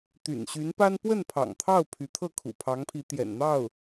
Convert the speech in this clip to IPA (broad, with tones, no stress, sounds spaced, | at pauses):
t̪ y̰˨˩ n ɕ y˧˥ n p a˥ n p w ə˥˩ n pʰ ɑ̰˨˩ ŋ t̪ʰ ɑ˥˩ ʊ̯ pʰ y˧˥ t̪ʰ ɤ˥˩ kʰ ṵ˨˩ pʰ ɑ˧˥ ŋ pʰ i˧˥ t̪ j ɛ̰˨˩ n n̪ ɑ˥˩ ʊ̯